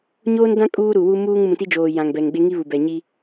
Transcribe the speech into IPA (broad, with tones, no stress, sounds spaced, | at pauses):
ɲ oː˦ n d ã˦ kʼ uː˦ ɾ u˨ w u˦ m uː˦ ŋ m ũ˨ t i˦ d͡ʒ oː˨ j ã˨ ŋ b ɛ˨ ŋ ɡ͡b e˦ ŋ i˦ β u˨ b ɛ˨ ɲ i˦